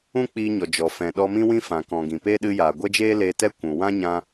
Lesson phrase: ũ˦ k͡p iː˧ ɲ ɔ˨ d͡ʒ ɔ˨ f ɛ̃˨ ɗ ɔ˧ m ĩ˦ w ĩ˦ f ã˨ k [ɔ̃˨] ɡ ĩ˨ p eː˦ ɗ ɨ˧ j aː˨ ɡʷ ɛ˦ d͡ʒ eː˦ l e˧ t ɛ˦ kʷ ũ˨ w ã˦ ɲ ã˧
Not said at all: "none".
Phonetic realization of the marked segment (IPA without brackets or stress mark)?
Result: ɔ̃˨